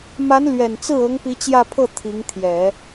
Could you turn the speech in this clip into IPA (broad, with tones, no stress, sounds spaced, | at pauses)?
m a˧˥ n l ɥ ɛ˨˩ n t͡s ɹ̩˥˩ ɤ˧˥ ŋ p i˧˥ t͡ɕ j ä˥˧ pʰ ɤ˥˩ t̪ʰ i˧˥ ŋ t̪ʰ j ɛ˨˩˦